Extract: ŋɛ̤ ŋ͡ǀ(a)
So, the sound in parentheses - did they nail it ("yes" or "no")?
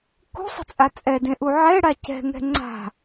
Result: no